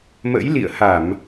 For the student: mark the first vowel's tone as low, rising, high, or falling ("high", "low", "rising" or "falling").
rising